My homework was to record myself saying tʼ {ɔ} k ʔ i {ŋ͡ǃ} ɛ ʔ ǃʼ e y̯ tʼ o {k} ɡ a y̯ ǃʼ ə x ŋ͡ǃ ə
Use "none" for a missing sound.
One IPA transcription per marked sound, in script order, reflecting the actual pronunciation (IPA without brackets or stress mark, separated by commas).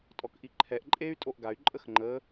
ɔ, ǃʰ, ʔ